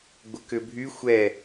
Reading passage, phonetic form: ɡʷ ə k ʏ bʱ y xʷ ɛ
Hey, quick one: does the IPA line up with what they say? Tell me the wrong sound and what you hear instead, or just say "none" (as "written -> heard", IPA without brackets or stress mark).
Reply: none